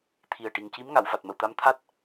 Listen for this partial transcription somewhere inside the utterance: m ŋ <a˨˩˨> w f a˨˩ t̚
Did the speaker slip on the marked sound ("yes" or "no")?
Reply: no